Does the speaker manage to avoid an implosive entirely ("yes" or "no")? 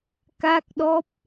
no